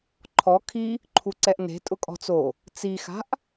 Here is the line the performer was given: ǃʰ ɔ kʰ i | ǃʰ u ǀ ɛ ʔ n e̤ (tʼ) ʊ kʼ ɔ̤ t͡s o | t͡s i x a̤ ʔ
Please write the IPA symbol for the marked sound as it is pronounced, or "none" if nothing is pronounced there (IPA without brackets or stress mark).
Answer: tʼ